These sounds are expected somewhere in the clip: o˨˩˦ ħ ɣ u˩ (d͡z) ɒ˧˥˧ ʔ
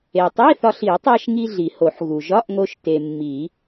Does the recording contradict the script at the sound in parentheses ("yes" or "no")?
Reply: yes